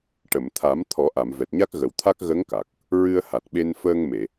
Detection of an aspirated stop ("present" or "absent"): present